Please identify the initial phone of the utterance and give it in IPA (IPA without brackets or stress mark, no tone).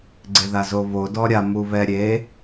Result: ɡ͡ǀ